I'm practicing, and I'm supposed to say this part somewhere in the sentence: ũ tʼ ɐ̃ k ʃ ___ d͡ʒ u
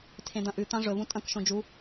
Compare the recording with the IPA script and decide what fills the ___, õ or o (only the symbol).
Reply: õ